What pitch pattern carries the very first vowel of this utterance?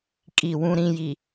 falling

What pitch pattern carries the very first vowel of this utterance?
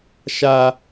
high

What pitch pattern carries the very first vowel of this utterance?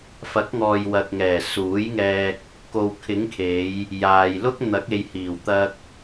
rising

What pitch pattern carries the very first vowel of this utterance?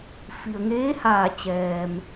low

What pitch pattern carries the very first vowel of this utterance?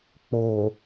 low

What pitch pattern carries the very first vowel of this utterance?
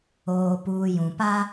low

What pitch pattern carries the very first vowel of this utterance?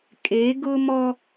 rising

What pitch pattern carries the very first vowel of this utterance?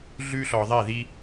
high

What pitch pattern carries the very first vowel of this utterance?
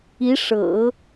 rising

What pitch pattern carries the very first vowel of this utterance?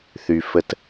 low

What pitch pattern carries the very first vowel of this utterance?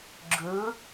rising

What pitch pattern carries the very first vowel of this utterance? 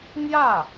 falling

